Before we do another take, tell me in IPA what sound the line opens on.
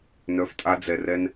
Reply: n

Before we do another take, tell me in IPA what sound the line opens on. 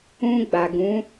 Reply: ũ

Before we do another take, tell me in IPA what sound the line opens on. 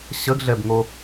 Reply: ɕ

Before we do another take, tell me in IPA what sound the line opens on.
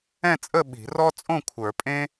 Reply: ɛ̃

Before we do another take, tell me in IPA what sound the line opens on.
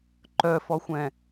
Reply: ǃ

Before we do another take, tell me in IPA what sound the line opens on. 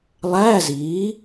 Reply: lˠ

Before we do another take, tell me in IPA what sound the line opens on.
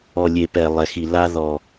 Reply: ɔ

